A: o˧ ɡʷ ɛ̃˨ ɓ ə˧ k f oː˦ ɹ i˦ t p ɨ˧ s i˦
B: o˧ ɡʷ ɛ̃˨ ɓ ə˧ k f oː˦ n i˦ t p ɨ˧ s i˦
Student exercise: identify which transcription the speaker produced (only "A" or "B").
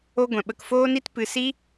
B